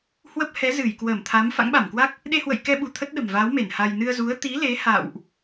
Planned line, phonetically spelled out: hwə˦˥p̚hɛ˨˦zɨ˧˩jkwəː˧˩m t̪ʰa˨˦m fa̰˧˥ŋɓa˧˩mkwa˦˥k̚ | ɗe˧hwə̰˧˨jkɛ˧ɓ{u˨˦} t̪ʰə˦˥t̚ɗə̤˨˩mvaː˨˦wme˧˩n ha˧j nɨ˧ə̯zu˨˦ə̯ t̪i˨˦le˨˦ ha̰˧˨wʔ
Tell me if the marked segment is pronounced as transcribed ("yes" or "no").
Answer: no